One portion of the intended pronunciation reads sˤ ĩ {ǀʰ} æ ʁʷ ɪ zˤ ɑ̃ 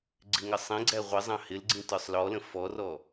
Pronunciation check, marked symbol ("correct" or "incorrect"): incorrect